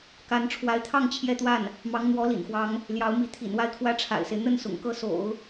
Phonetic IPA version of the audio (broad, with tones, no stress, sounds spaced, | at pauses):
k a˧˥ n ʈ͡ʂʰ w a˧˥ ɪ̯ t̪ʰ ɑ˥˧ ŋ t͡ɕʰ j ɛ˥˧ t̪ w a˥˩ n | m ɑ˧˥ ŋ n̪ w ɔ˧˥ l ḭ˨˩ n x w ɑ˧˥ ŋ | l j ɑ˧˥ ʊ̯ m i˧˥ t̪ʰ ḭ˨˩ n w a˥˧ ɪ̯ kʰ w ä˥˩ ʈ͡ʂʰ a̰˨˩ ɪ̯ s e˦ ɪ̯ n̪ ə˥˩ n s ʊ̰˨˩ ŋ k ɤ˥˩ s o̰˨˩˦ ʊ̯